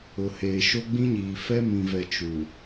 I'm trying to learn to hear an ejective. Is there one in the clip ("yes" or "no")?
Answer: no